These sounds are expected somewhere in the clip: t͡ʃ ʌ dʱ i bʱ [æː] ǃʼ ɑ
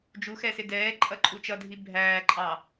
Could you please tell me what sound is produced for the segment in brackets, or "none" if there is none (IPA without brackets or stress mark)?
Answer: æː